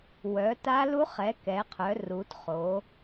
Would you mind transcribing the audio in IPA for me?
wœ˨˦ta˦˥lu˦˥χ ɛ˨˦ kɛ˨˦qʰœ˨˦ru˨˦tχo˨˦

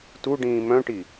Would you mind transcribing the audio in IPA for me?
tuɖĩː mœ̃ʈi

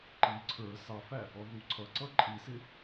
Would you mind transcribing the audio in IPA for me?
ǃi ǀʰə˞ sɑfæ | ɔðuǀʰʌǀʌ ǃʼisɪ

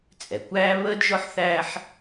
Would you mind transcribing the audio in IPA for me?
t͡sʼɛ˩kʷæː˥ βəː˥dʒɔ˥ħθæː˥ħ

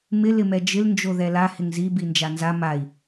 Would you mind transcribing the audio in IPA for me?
mɪ lɪmɛd͡ʒɪl nd͡ʒoðɛla hɪŋzi bind͡ʒanza mai̯

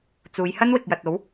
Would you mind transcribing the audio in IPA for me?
t͡suː˨˧jhɐ˥nwɪ˨k̚jɐ˨t̚ o˨˥w

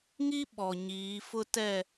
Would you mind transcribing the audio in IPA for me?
ŋi˦ ɓɔ˨ɲiː˨˦fʊ˦ tɛ˦˨

